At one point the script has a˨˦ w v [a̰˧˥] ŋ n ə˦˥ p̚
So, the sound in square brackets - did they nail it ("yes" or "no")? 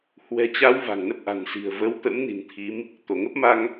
no